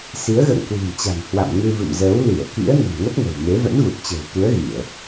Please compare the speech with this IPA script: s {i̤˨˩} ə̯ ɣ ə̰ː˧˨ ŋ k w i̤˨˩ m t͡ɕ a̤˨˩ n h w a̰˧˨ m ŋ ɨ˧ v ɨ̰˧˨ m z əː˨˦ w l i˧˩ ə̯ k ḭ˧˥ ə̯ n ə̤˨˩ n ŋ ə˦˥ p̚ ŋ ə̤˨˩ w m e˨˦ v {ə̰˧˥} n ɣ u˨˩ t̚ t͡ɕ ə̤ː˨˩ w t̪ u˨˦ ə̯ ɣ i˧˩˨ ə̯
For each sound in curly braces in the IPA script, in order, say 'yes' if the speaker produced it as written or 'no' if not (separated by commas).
no, yes